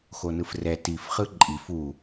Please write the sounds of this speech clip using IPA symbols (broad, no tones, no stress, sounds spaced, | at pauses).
x o n ɯ f r ɛ t i f χ ɯ ǃʼ i f u